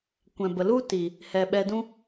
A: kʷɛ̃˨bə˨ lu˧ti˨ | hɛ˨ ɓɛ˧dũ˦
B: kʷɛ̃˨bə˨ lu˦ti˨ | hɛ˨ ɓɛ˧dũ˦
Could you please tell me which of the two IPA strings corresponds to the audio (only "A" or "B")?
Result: B